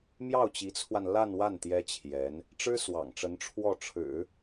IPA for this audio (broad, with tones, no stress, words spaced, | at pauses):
mjɑ˥˩ʊ̯t͡ɕi˧˥t͡sʰwa˧n la˥˧nwa˥˩n t̪jɛ˥t͡ɕʰjɛ˧˥n | ʈ͡ʂɻ̩˥ swɑ̰˨˩ŋʈ͡ʂə˧˥n ʈ͡ʂʰwɔ˥˩ʈ͡ʂʰɻ̩˨˩˦